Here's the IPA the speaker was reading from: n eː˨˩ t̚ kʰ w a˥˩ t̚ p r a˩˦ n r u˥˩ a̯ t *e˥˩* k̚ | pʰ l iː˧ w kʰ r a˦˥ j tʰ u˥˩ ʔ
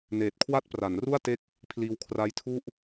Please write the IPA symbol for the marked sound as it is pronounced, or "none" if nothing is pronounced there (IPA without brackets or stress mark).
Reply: e˥˩